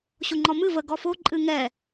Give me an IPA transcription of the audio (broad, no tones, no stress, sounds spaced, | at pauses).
ɕ o ŋ͡ǃ ɔ m ɨ v ə ɡ ɔ f o ǃʼ ɨ ŋ ɛ